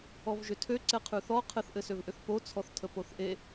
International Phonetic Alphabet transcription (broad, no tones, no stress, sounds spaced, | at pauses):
ɔ v ʒ ʏ tʰ ø ǀ ɛ qʰ ʉ θ ɔ qʰ ɘ θ ʔ ɘ s ø v ʔ ʏ θ p o t͡sʰ ɔ θ tʰ ə p o θ ʔ e